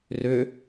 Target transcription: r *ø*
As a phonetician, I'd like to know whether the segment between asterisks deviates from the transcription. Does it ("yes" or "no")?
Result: no